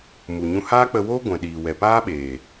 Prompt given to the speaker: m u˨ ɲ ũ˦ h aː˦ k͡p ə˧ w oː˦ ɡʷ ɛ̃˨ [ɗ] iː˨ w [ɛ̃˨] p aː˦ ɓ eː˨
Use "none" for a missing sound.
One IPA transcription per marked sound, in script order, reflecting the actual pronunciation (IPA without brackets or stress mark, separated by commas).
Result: ɗ, ɛ˨